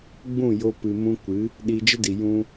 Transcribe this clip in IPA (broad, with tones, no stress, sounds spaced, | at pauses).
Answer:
ɡ͡b ũ˦˨ j o˧ p ɨ˨ m ũ˧ kʷ ɨ˨˦ | ɗ i˧ d͡ʒ ə˦ d i˨ j ũ˧